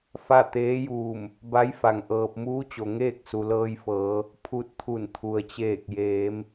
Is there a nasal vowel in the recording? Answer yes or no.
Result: no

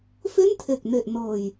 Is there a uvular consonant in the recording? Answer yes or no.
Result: no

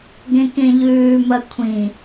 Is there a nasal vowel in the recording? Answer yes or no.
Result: yes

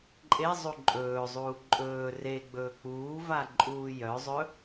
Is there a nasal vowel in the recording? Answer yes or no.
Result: no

